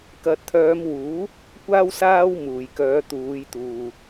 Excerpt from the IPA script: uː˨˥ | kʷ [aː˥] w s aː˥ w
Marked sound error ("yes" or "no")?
no